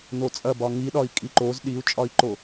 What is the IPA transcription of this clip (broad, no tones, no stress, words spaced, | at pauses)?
not͡sʼɐbɒ ŋiɗɒi̯ kʼiǃoz ɗiu̯t͡ʃʼɒi̯ǃo